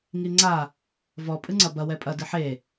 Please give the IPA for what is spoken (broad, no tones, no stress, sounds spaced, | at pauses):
ŋ i ŋ͡ǀ a | v ɔ pʼ ɨ ŋ͡ǀ ɐ b ɐ w ɛ pʼ ɐ d ɨ ħ e